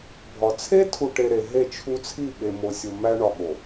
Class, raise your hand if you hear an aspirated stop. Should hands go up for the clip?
yes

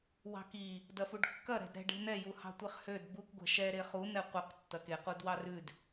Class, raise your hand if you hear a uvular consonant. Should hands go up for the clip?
yes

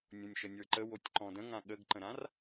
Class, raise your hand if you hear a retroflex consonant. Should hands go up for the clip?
no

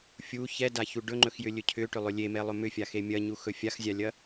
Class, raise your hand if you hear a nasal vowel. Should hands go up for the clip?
no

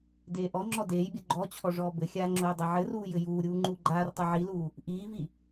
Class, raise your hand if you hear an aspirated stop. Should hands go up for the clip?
yes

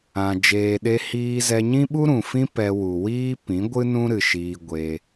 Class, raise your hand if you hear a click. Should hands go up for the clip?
no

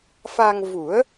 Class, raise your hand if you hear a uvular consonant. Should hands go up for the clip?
no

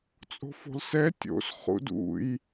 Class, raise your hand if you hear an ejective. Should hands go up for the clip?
yes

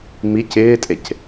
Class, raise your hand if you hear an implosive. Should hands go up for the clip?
no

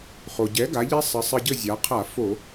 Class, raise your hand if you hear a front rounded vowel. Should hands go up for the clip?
no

